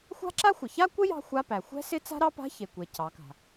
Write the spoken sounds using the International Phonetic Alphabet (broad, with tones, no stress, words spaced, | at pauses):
xʷa̤˥ǁa˥xʷɪ˩ ça˥kʷɪ˥ jɑ̤˥xʷa˧˥˧pæ˩ xʷɛ̤˥sɪ˥ t͡sa̤˥ ɾɑ˥pa̤˧˥˧çe˩ kʷe˩ cʰɑ˩˧ka̤˩